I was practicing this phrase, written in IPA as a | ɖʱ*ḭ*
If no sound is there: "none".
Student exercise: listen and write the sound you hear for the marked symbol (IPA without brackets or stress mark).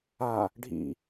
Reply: ḭ